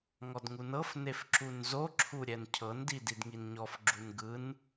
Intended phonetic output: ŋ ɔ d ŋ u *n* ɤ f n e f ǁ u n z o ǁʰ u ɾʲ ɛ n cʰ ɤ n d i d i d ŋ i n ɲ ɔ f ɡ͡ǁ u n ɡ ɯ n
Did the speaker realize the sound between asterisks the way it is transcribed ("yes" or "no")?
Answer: yes